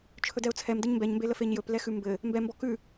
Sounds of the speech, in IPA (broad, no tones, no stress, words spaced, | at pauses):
t͡ʃʰɵdɛʊ̯t͡sʰɛm dɘɲmbɛɲmbelə feɲjɵp lɛxʉmbɘ | mbɛmbɔ kʉ